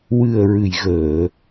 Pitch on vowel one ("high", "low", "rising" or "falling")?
low